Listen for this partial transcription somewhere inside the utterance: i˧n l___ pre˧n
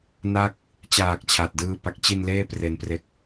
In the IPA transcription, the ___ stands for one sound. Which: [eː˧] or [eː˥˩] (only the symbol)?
eː˥˩